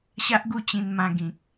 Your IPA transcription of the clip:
ɕ a˦ ʔ ɡ u˥˧ t͡ɕ ĩ˧ n m ã˧ ɡ ĩ˨ k̚

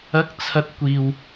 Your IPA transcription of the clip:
ɐ˨˥ k̚ t͡sʰ ɐ˧ t̚ kʷ iː˨ w

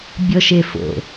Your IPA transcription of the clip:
bʲ ɔ ʃ e f o̰

